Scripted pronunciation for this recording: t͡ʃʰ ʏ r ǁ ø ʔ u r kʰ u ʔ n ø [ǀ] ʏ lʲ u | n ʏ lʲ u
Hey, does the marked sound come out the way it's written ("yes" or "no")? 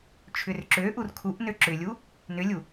no